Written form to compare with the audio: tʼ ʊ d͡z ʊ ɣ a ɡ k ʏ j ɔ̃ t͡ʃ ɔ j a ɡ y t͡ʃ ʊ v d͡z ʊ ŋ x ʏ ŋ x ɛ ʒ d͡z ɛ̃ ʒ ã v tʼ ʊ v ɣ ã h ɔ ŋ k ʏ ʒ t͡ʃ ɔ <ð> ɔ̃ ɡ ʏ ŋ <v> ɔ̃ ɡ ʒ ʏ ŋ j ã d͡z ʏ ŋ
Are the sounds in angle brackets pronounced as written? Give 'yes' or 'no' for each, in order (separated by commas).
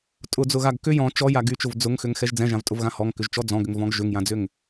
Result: no, yes